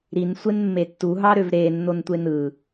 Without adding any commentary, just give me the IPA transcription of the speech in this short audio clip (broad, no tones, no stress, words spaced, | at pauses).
ɾinsʷenmːe tːuɦɑɾøv ɾenːontʷen ɯ